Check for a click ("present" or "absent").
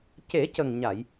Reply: absent